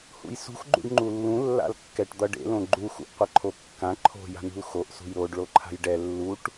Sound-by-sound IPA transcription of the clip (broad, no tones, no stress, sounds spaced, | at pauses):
h ṵ j s ṳ x ɡ͡ǃ ṵ ɖ ŋ͡ǃ u lː ũ lː a̰ l kː ɛ ʈ d̪ ʌ ɖ ḛ l õ ɡ͡ǃ u x ṵ ʔ qʷ ʌ ǃʰ o kː ã ǃʰ o̤ j a̤ n̪ ṳ l x o ʔ s ṳ j ɾ o ɖ ɭ o ǃʰ a̤ j ɖ ɛ lː u ʈ